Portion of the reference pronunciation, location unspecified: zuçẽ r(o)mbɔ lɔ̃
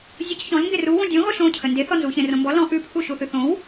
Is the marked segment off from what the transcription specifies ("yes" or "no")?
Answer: yes